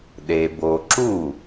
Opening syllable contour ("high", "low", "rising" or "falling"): low